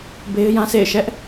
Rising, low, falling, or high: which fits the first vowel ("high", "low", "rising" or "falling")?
high